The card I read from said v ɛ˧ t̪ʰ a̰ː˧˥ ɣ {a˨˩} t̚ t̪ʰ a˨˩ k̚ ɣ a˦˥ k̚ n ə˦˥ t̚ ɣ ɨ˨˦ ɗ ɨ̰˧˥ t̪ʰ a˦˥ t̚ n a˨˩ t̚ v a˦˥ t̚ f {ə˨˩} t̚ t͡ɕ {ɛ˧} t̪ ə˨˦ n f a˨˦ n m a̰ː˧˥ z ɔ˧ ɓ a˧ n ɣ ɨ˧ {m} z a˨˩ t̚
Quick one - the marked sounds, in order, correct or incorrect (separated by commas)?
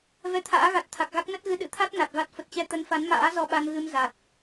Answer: correct, correct, correct, correct